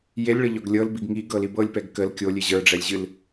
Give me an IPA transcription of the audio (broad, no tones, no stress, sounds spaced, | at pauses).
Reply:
j e lʲ ɭ ə ʎ ɔ ɡ lʲ ɤ l b i ɡ ŋ i ɡ ɤ l i b ɤ lʲ p ɛ ɡ k ə l kʲ o lʲ e ʑ ə˞ ɖ͡ʐ ɛ lʲ ʑ ɨ l